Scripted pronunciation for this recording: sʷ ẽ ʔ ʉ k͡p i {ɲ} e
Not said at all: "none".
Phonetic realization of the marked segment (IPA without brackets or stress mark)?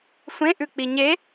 ɲ